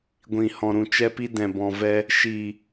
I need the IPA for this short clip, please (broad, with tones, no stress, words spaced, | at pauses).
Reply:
ɡʷĩ˨hɔ̃˨ ɾũ˨t͡ʃɛ˧pi˧ dɛ̃˨bɔ̃˨vɛ˧ | ʃiː˨